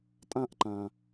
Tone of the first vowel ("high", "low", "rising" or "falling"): high